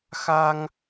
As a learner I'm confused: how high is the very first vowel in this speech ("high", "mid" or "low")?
low